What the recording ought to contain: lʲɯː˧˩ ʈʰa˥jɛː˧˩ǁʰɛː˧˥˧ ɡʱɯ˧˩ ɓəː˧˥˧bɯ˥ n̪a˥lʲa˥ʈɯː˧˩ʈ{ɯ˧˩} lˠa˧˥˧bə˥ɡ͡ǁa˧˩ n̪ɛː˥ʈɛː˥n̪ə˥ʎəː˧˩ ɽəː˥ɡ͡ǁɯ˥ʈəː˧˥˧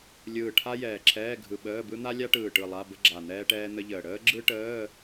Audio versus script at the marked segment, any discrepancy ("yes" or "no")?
no